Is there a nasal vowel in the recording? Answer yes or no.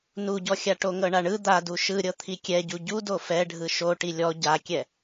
no